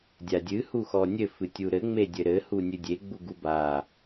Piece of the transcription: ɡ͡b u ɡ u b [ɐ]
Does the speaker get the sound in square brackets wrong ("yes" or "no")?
yes